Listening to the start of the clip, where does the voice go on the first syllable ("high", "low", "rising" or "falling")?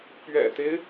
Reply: low